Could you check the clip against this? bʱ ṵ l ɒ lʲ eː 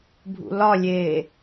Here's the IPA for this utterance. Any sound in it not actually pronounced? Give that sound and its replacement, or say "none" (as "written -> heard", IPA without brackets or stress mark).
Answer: none